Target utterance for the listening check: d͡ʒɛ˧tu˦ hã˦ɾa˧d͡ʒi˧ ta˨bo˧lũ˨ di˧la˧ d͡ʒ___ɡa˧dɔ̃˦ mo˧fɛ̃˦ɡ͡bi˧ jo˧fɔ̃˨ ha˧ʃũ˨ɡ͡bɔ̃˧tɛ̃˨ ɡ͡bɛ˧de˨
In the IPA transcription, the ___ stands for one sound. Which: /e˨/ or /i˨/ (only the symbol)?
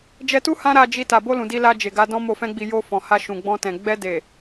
e˨